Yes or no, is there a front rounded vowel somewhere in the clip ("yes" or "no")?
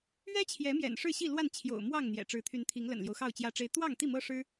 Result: yes